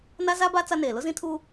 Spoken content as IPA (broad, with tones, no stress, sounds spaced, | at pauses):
n a˦ z a˦ b a˦ t͡s a˦ n eː˨ l ʊ˦ z ĩ˦ tʰ uː˦